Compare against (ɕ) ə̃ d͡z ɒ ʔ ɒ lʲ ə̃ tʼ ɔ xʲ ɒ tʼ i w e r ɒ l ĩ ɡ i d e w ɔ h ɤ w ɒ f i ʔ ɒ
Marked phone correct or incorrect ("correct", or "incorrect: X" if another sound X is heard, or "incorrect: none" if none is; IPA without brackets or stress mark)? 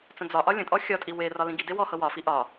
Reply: incorrect: t͡s